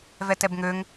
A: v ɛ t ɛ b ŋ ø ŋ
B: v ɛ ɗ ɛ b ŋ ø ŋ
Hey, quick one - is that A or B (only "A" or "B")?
A